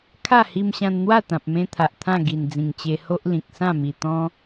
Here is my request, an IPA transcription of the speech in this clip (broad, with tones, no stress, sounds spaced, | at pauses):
kʰ a˥˧ h i˧ m ɕ ã˧ n n̪ w a˥˧ t̪ ã˨ p̚ m ẽ˧ t̪ʰ a˨ ʔ t̪ʰ ã˥˧ ɡ i˨˩ n d͡z ĩ˨˩ ŋ t͡ɕ e˧ h o˦ ʔ l ĩ˨ k̚ s ã˥˧ m i˨˩ t̪ ɔ̃˦